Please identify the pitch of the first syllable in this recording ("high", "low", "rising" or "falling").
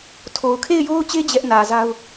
low